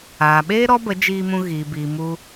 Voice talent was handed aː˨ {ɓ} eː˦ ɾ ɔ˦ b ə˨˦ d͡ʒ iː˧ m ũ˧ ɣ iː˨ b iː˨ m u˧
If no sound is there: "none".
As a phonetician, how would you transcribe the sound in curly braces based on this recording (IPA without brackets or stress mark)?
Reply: ɓ